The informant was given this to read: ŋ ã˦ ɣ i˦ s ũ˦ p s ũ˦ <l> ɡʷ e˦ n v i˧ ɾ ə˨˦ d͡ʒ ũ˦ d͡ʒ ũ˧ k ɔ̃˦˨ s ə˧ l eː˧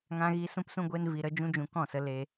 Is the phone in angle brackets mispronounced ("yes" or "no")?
yes